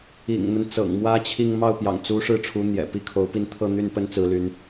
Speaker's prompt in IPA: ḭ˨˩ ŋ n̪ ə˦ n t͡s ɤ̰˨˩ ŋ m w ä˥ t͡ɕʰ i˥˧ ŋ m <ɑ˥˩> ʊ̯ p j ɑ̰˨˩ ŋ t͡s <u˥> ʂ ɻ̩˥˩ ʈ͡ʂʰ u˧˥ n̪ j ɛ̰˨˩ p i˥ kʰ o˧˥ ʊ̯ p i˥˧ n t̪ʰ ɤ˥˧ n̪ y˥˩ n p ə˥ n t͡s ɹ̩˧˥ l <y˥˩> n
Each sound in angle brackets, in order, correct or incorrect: correct, incorrect, incorrect

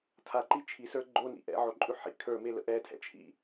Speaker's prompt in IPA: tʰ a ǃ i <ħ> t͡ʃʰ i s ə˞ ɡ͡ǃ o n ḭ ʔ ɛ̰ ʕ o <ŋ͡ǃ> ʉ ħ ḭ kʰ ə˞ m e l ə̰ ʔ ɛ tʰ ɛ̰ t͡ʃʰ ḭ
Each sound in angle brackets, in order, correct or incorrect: incorrect, incorrect

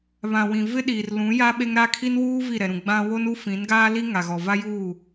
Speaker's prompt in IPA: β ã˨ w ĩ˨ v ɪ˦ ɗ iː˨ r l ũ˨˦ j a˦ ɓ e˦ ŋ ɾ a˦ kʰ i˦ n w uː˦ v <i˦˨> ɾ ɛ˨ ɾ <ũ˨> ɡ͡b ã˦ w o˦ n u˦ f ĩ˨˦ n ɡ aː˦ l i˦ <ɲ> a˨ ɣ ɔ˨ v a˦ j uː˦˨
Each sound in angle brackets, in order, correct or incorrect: correct, correct, incorrect

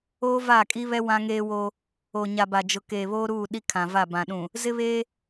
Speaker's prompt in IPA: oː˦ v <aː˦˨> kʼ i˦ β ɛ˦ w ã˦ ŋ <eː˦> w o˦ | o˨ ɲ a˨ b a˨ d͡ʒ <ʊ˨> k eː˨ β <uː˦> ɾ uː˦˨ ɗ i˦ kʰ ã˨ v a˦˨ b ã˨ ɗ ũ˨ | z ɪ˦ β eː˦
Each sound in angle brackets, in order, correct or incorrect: correct, correct, correct, incorrect

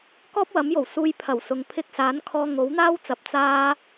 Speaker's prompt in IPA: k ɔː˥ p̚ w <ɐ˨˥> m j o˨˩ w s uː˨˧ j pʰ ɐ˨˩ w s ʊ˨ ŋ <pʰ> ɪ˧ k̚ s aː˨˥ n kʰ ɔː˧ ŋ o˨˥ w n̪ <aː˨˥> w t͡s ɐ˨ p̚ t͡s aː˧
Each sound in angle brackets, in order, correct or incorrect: correct, correct, incorrect

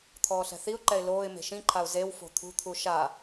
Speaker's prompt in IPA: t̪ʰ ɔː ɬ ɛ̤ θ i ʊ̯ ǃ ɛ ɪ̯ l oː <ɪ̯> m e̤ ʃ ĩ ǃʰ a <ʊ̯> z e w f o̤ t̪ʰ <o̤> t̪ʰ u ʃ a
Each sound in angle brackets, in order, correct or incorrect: correct, correct, incorrect

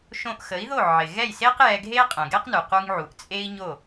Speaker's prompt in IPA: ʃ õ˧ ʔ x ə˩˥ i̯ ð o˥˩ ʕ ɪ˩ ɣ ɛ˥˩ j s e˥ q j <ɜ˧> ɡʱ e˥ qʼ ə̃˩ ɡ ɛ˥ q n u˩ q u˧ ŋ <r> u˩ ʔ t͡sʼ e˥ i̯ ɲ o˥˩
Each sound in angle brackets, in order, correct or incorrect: incorrect, incorrect

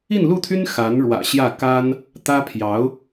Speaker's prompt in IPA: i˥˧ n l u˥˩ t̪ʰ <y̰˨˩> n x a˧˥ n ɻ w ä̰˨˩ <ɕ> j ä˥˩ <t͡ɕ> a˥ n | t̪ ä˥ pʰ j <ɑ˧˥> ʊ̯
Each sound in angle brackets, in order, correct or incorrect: incorrect, correct, incorrect, correct

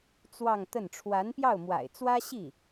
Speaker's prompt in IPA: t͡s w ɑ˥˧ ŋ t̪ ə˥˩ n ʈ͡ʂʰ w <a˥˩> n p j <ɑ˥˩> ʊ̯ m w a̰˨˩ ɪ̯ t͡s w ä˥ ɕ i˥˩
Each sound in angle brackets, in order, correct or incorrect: incorrect, correct

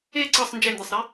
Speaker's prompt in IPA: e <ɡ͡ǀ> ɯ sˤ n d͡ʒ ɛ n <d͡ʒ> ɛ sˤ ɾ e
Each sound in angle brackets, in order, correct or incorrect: incorrect, incorrect

